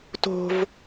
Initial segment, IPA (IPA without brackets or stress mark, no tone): t